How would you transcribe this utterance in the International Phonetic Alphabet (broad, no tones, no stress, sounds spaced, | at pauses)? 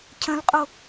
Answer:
cʰ ə̃ l qʼ o